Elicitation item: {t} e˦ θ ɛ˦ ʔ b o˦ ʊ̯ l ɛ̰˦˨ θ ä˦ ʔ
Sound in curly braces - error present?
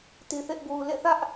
no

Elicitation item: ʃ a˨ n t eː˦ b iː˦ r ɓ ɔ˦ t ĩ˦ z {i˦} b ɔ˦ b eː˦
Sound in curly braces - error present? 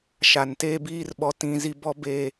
no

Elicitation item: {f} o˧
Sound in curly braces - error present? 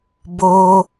yes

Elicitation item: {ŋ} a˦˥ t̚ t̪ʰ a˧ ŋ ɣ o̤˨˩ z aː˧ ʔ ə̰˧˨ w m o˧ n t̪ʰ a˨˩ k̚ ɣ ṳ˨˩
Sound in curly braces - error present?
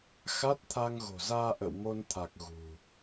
yes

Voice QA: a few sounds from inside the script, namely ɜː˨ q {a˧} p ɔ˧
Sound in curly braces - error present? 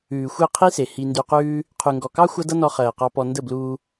yes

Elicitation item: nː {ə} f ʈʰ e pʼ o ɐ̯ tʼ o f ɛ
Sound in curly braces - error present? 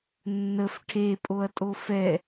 no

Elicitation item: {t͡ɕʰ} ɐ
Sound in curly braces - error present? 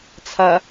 yes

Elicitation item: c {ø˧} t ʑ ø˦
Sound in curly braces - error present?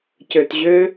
no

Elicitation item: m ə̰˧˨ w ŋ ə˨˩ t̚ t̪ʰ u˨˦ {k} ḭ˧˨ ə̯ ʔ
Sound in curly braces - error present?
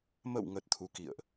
no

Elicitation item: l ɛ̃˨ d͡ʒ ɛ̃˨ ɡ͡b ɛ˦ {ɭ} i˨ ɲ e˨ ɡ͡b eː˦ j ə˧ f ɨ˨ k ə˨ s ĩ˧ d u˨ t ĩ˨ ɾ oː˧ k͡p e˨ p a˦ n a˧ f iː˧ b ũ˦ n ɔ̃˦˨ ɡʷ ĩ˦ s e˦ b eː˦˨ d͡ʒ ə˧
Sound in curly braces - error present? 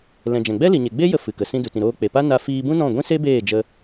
yes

